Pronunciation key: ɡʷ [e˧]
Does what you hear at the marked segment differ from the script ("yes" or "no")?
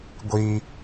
yes